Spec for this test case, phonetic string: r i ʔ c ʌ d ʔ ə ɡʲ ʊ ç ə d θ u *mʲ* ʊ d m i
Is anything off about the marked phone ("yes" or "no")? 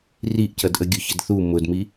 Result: yes